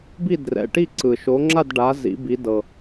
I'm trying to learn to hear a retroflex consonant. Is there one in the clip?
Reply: yes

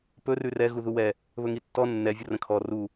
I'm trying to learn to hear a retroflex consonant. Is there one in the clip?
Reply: no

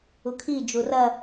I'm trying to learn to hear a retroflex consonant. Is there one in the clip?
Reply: no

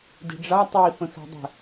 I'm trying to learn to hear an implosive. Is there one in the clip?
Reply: no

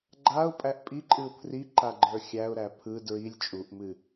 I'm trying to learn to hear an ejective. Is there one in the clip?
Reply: yes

